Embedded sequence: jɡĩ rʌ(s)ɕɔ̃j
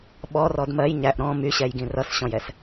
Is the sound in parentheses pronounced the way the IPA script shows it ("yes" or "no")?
yes